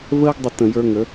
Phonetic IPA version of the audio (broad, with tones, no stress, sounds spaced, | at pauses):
v əː˦ ɡ dˤ ɪ˧ t ə̃˧ j ə˞˦ ŋ ə˨˦